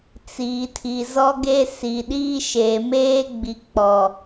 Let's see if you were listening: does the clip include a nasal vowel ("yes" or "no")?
no